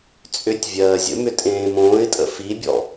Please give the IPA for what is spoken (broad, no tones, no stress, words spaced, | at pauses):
t͡sʼʏtʲ vʲɜːzʲə̰mʏ tʼẽːmõːɪ̯tʼə̰ fibʲɔ̰